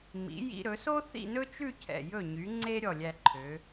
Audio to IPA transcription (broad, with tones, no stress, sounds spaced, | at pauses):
m ḭ˩˧ j ḭ˧ ɾ ɵ˩˧ s o˥ θ ḭ˥˧ n ɵ˥ t͡ʃ ʉ˥˧ cʰ ɛ̰˧˩ j ɵ˧˩ ɲ y˩˧ ŋ͡ǀ e˥ ɾʲ ɔ˧˩ lʲ æ˧ ǃʰ ø˩˧